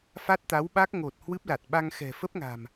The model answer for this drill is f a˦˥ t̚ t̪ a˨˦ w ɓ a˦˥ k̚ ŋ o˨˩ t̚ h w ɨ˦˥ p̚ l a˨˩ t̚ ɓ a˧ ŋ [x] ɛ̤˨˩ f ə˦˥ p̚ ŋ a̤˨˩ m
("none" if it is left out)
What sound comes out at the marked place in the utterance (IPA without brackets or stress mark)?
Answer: x